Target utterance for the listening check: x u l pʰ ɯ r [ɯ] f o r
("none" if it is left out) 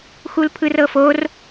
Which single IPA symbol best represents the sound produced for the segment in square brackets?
ɤ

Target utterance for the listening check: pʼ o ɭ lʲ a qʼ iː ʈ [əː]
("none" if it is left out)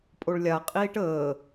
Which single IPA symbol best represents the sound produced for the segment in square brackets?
əː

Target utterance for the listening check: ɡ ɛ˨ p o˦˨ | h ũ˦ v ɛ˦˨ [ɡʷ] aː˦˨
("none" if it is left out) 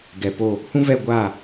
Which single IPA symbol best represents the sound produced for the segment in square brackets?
ɡʷ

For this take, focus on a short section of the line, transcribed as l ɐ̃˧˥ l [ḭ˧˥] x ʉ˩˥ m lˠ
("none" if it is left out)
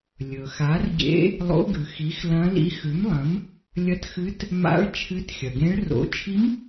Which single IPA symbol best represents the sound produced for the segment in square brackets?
ḭ˧˥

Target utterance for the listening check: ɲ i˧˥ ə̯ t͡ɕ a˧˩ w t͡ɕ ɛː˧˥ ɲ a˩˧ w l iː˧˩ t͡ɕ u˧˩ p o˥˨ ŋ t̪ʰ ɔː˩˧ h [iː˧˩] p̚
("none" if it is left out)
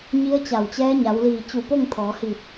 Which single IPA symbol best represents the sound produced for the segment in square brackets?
iː˧˩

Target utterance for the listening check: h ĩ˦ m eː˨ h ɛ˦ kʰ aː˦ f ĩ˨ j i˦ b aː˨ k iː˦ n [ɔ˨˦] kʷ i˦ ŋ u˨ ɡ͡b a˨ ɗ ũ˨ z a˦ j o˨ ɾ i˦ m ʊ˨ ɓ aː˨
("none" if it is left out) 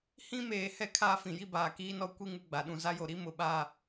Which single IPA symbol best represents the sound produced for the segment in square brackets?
ɔ˦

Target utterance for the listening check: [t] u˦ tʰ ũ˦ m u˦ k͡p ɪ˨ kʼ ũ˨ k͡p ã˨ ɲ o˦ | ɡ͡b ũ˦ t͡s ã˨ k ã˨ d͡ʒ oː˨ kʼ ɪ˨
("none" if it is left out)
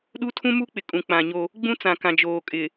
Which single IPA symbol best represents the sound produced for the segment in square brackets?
ɗ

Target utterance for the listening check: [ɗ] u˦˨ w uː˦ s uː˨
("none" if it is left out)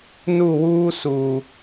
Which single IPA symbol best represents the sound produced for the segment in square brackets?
n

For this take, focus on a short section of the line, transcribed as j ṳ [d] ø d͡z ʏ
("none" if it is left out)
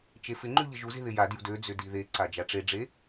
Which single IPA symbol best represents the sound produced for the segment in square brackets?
d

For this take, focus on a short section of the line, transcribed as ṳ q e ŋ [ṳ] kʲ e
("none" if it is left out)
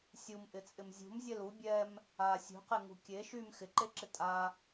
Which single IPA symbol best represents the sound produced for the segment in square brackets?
ṳ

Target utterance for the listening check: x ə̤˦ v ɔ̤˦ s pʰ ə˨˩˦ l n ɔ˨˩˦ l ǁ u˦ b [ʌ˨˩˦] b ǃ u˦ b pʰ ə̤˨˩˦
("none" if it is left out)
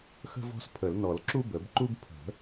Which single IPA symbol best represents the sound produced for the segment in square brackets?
ə˨˩˦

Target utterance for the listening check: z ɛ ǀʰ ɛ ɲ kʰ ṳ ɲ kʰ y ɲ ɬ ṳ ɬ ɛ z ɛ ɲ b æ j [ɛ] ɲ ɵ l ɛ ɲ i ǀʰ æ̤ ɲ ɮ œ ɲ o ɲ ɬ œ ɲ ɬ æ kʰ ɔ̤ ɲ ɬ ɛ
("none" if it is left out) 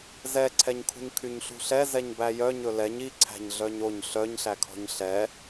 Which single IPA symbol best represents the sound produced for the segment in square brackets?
œ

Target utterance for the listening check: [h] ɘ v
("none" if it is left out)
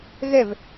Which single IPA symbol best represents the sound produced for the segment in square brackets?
ɣ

